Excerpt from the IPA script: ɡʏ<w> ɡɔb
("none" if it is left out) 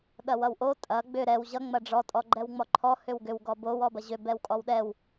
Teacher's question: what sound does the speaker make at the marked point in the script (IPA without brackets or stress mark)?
w